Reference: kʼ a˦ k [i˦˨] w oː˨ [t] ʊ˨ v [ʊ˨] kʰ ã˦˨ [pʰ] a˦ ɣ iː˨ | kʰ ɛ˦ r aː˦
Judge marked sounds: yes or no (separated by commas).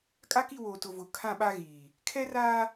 yes, yes, yes, no